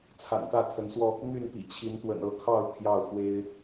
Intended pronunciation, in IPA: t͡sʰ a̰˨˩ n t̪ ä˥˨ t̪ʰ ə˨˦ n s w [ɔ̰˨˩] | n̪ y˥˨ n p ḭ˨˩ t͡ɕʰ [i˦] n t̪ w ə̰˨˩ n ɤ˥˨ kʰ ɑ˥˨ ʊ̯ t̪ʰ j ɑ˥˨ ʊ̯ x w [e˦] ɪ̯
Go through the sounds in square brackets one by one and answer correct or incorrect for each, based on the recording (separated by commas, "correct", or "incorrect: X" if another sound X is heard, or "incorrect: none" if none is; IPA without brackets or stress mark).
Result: incorrect: ɔ˧, incorrect: i˨˦, correct